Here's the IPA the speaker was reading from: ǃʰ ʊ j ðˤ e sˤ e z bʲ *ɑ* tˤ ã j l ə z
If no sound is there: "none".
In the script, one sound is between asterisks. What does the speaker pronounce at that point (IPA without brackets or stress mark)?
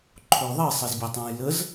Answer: a